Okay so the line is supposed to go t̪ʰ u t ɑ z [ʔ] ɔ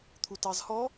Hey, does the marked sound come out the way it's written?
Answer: no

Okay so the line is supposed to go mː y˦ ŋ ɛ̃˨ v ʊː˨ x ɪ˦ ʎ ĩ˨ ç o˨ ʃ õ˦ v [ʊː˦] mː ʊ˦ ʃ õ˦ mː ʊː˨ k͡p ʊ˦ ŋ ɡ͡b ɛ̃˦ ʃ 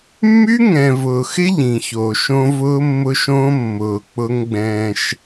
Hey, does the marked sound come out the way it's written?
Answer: yes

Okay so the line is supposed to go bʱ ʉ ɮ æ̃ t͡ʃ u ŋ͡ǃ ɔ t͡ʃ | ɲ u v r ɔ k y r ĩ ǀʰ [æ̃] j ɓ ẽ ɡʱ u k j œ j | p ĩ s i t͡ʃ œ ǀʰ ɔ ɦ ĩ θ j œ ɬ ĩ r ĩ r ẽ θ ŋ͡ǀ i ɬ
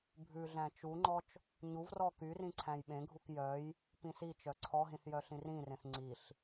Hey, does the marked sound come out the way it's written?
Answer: yes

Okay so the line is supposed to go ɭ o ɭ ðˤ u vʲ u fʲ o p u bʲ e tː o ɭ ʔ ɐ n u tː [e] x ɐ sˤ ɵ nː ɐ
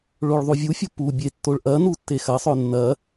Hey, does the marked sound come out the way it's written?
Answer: yes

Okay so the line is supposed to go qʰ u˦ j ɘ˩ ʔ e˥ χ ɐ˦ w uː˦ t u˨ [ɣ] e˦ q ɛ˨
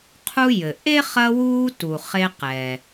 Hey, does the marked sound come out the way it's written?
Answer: no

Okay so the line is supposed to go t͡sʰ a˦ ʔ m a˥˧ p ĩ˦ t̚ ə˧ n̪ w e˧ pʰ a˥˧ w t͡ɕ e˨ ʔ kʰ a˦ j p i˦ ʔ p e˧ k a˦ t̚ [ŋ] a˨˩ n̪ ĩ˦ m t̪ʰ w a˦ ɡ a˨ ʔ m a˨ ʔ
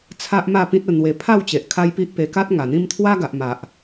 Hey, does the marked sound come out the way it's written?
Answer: yes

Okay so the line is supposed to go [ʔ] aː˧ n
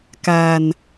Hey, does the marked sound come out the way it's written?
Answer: no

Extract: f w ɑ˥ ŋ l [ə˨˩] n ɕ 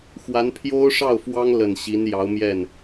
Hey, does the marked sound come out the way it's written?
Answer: yes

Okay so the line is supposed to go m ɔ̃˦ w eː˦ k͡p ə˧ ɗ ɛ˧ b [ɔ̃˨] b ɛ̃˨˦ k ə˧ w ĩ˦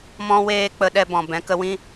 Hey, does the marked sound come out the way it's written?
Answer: yes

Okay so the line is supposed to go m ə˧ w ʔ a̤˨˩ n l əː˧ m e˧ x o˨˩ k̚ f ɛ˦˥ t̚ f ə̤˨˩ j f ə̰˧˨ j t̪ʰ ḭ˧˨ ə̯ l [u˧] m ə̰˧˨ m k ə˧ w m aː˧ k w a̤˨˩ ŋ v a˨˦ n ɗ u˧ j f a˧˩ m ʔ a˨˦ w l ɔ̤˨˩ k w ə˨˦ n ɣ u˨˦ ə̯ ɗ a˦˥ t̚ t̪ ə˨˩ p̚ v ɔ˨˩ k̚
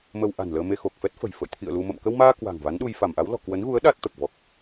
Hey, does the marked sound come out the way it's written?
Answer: yes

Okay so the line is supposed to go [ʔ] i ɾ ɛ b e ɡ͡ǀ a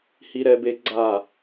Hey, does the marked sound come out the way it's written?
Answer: no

